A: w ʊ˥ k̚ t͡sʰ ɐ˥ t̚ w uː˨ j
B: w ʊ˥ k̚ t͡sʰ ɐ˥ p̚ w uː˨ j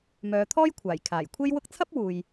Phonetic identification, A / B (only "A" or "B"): B